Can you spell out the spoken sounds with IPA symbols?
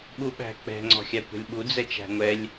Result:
ɓuɓæ̤k͡pɛ̤ ŋ͡ǀɔ̤xʲakʷɛ̤lʲɓu d͡zɛt͡ʃæ̤ŋʷɛlʲ

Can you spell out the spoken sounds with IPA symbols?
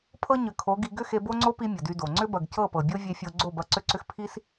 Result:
pʰɤ˦ɲʏ˨ kʰo˨˦ɡi˧ ɡʏ˦xe˧bo˦ŋ͡ǀo˦ pi˦mʲɐ˨dy˧do˨ ŋ͡ǀʏ˦bɐ˨ɡcɤ˦˨ pɤ˨bʲo˦vʲe˧fʲo˧ ɡ͡ǀo˦˨bɐ˧ǀʏ˦ǀʏ˦x pʰi˦s

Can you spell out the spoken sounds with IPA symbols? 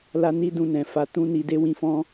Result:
la˧ ni˦dũ˧nɛ̃˨ fa˧tũ˦ ni˧ de˦wĩ˧ fɔ̃˧

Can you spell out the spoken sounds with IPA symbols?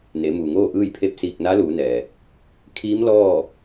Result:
ne˩˧muː˩ŋoː˥˨ ʔɯː˥˨jpʰe˥˨p̚ siː˧˩k̚ na˧˥luː˩˧nɛː˩ | kʰiː˧˥mlɔː˥˨

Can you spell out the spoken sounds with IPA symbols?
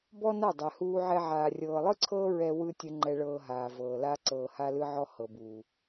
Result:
bɔ˦na˦˨ dˤɛ˨huː˧ʕɛ˧ ʕaː˨rʲɤː˨lˠɯ˦ǀʰɤː˦ ɹɛ˧ wɯ˦ tʲɯ˧ŋ͡ǃɛ˧ɭɤː˧ɦaː˨ vɤː˨la˦ ǀɤː˨ha˧lɯ˧ʕɔ˧ hɤ˨buː˨

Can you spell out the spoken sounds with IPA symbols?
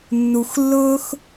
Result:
nːu˨xlːʊː˦x

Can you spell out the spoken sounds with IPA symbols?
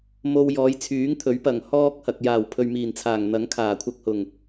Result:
mo˧wjɔː˨˧jt͡sʰyː˨˥ŋt̪ʰɵ˨˥ɥ pɐ˨˩ŋ hɔː˥k̚hɐ˨k̚ jaː˨˩wpʰɵ˨ɥ miː˨˩nt͡sʰaː˨˩ŋn̪ɐ˨˥ŋ kʰaː˨˩kʷʰɐ˧k̚hʊ˨˩ŋ

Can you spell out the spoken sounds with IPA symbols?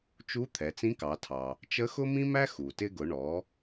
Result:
t͡ʃu˧˥t̪ʰɛ˩˧ t͡sĩ˧˥kɑ˩˧tʰɑ˩ | t͡ʃə˧˥xʊ˥ mĩ˥mæ˥ xu˩tɪ˧ɡʊ˩˧ ɳɔ˩˧

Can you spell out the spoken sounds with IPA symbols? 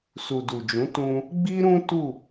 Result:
su˨du˨d͡ʒũ˨˦ tũ˧ | ɡ͡bi˦ɾũ˦ tu˦˨

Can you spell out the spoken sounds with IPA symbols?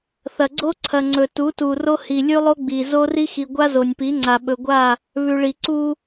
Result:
θɐ˨ɡ͡ǀo˦ ǀʰɐ˨ŋ͡ǀɵ˨ tu˨˦tu˨ro˦hi˨ lʲʉ˦lˠo˦ɡ͡bi˨ zo˦ri˦xi˨ ɡʷa˦zo˨nʲpi˨˦ŋ͡ǀa˨ ɓɵ˨ɡʷa˦˨ | βʉ˨ɭi˨ ǀu˦

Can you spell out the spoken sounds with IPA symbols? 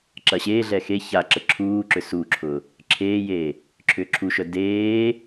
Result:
ǁɐɕeːɮɛ xe çaǁə ǁʰuːǁʏ suːǁʰʊː | ǁʰeːjeː | ǁʰʏːǁʰuʃœ deː

